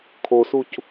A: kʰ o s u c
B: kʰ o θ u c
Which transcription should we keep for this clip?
A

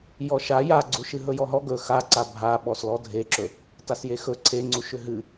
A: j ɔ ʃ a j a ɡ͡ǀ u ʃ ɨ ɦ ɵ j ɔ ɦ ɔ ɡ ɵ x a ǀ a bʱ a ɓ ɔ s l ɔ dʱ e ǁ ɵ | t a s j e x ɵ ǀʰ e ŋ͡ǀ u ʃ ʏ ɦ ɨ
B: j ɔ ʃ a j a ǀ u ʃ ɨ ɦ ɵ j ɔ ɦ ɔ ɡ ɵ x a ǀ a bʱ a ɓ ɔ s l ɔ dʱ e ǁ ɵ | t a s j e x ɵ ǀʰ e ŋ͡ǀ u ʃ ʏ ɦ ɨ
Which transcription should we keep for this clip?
A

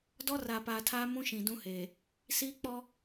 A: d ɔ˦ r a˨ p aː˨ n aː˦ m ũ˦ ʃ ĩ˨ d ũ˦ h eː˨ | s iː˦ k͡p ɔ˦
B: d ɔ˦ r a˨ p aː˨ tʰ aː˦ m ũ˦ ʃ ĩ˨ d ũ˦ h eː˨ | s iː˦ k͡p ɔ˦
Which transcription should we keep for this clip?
B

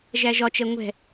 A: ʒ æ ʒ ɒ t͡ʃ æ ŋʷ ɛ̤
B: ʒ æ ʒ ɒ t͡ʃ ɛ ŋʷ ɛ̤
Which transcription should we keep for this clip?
B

